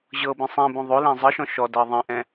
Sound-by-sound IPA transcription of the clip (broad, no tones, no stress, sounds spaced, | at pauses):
ʑ ɤ b ĩ sˤ ĩ b õ ðˤ o l ɛ̃ zˤ ɯ ʃ ɔ̃ ʃ ɔ d ɤ ðˤ ĩ ʔ ɛ̃